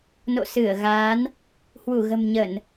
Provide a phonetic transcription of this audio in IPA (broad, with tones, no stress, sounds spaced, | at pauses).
n o̰˧˨ s ɨ˧˩ ə̯ ɣ aː˨˦ n | h w u˧˩ ɣ ə̤˨˩ m ɲ ə˧˩˨ n